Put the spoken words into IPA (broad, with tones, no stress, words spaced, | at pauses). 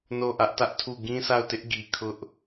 no˦˨ʔä˦ʔtä˦ʔtʰu˦˨ ɡĩ˦sʰa˦˨ʊ̯tɪ˦ʔ ɡi˨kʰʊ˦ʔ